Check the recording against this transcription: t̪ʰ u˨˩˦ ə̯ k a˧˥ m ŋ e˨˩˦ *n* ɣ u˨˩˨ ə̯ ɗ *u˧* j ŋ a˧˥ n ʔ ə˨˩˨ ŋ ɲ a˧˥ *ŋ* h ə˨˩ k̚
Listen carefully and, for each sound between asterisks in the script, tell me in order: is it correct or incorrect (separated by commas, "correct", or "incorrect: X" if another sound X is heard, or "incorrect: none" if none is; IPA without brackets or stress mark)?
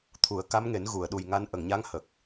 correct, incorrect: u˨˩, correct